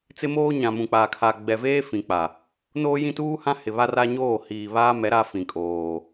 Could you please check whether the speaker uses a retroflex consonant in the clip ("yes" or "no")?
no